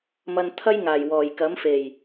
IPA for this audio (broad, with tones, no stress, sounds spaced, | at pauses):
m ɐ˧ n t̪ʰ ɐ˥ j ŋ aː˨˩ j w ɔː˨˩ j k ɐ˨˥ m f e˨˩ j